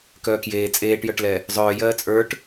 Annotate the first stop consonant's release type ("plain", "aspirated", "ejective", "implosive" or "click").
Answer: plain